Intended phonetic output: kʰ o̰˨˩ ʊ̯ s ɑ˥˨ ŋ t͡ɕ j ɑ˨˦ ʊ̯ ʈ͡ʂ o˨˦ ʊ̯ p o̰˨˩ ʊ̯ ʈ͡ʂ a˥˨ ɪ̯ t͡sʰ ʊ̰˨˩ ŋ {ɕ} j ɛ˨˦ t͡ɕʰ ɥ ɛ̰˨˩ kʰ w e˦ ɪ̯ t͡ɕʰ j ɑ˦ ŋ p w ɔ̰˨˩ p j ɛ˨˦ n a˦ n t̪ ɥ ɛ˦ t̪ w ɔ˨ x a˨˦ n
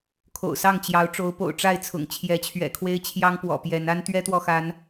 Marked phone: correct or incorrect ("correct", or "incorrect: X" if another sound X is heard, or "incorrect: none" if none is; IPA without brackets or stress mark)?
incorrect: t͡ɕʰ